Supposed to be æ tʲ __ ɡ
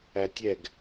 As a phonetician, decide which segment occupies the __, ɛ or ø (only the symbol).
ɛ